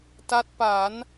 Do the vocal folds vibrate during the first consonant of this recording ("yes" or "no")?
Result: no